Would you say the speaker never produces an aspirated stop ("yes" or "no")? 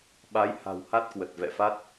yes